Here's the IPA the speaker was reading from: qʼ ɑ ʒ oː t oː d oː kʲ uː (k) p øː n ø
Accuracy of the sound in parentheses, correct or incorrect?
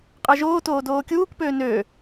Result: correct